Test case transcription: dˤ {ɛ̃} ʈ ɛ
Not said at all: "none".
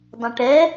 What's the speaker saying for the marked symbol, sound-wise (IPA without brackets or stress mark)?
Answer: ɛ̃